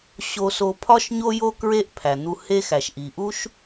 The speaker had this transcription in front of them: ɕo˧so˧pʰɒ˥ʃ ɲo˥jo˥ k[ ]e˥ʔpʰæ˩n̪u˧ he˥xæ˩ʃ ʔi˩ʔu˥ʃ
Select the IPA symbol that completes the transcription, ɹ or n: ɹ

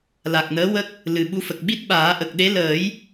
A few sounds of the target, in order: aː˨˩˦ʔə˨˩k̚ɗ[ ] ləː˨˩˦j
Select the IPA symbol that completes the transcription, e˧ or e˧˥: e˧˥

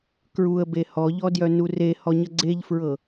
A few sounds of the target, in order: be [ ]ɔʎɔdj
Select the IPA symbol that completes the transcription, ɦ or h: h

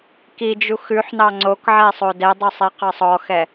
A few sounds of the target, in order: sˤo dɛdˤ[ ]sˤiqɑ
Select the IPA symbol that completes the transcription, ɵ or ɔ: ɵ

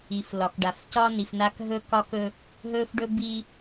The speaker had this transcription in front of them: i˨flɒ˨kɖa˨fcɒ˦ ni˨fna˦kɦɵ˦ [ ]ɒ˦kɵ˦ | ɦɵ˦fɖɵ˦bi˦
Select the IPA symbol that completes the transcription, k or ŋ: k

